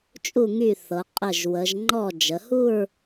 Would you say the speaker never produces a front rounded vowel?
no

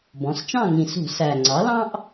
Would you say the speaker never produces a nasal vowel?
no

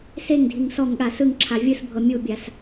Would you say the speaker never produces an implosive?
no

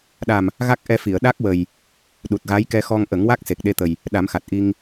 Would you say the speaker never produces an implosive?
no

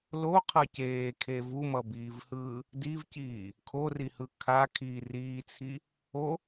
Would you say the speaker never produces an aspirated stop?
no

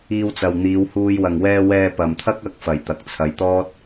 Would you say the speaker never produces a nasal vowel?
yes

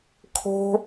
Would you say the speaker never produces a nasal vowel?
yes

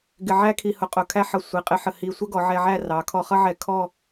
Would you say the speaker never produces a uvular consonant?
no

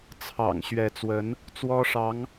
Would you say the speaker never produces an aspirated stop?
no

